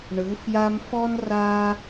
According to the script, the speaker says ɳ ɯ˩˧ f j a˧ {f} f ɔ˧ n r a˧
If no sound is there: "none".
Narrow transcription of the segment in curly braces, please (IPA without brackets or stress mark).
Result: m